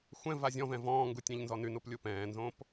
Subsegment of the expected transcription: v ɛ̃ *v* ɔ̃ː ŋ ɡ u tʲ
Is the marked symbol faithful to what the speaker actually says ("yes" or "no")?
yes